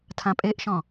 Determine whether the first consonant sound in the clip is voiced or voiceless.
voiceless